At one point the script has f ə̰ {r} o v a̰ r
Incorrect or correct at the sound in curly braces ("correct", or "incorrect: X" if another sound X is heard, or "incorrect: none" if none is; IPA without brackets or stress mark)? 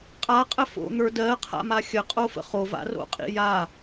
incorrect: χ